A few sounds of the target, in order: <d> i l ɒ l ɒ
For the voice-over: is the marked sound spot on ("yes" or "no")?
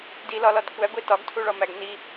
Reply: yes